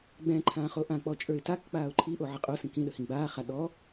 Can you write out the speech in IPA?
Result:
ɡ͡b ɛ̃ ǃʰ ãː χ o ʔ ã k͡p ɔ t͡ʃʼ ə˞ ɪ̯ t a k k͡p aː ʊ̯ ǃʰ i ʔ o ʕ ə qʼ o s ĩ k ĩ ɗ ə h ĩ ɡ͡b aː χ a ɗ ɔ

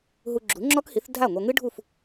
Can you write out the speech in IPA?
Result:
ɦ u˧ ɡ͡ǁ u˩˥ ŋ͡ǁ ɔ˥ k h i˩˥ θ dʱ a˥˩ ŋʷ ɐ˧ ŋ ɨ˥ ɖʱ u˥˩ f

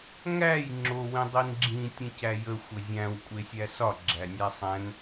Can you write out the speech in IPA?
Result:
ŋ æ j ŋ͡ǁ o w ĩ dˤ i n ɡ͡ǁ ĩ tʲ ə̃ c æ j ə xʷ ə zʲ æ̃ w kʷʼ e sʲ æ s ɒ ɡ͡ǁ æ nʲ æ sˤ æ̃ n

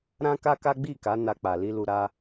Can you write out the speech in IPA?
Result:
ɾ ã˦ k a˦ k a˦ ɡ͡b i˦˨ k a˨˦ n a˧ k͡p a˨ l i˧ l u˧ ɾ a˦

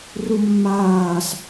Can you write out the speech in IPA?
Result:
r u mː aː s

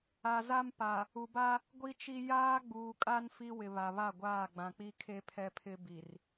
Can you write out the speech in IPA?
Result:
a˨ z a˦ m p a˨ | u˨ b a˦ | ɡʷ i˦ t͡ʃ i˦ j aː˦ ɡ͡b uː˨ kʼ a˦ n f i˦ w ɪ˨ β a˨ β a˦˨ ɡʷ aː˦˨ ɡ͡b ã˨ k͡p i˦ kʰ e˦ pʰ ɛ˦ pʰ ɪ˦ b i˨ r

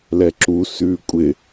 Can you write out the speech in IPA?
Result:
l ɛ ǁ u s ʉː kʷʼ ɪ

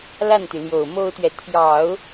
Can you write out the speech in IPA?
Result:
l a˥˩ n t̪ y˩ l j o˨˩ ʊ̯ m o˥ ʊ̯ t̪ ɥ ɛ˨ t̪ʰ j ɑ˨˩˦ ʊ̯

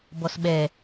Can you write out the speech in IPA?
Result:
b ɔ s ɓ ɛ

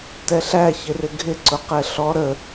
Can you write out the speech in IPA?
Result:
t ɛ ɬ æ ç ɪ r ɪ ɡʱ ɪ ǀ ʊ q ɛ ɬ ɔ ɾ ə

